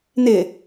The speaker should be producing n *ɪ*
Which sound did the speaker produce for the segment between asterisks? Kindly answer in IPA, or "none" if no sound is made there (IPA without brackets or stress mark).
ɪ